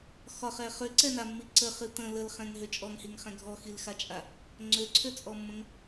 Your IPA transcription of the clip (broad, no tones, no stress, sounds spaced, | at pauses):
x ɒ χ ɛ χ ø ǀ ɛ n a mː i ǀ ə χ ɨ t̪ ə̃ l ə l χ ɛ̃ ŋ ɦ ø t͡ʃʼ ɔ ŋ h i ŋ χ ɛ̃ ɡʱ ɔ x i l x a t͡ʃʼ a | ŋ͡ǀ ø ǀʰ ø t͡sʼ ɔ mː ə̃ ŋ